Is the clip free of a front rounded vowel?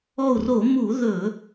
yes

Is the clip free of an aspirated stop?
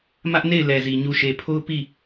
no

